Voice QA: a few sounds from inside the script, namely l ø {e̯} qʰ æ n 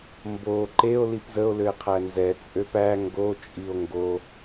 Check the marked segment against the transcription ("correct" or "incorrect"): correct